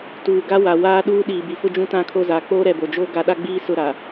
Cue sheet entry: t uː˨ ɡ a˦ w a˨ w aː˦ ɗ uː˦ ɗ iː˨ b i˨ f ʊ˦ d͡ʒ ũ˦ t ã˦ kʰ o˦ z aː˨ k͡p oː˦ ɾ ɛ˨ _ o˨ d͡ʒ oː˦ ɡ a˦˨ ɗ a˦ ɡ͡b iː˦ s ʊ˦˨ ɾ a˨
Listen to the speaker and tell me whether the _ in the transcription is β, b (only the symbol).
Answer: b